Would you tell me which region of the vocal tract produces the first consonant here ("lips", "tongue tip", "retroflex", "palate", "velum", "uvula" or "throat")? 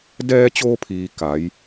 tongue tip